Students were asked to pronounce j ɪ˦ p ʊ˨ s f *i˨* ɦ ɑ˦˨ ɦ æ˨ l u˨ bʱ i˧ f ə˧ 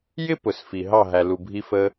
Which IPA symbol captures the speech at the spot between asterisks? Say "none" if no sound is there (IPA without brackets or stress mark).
i˨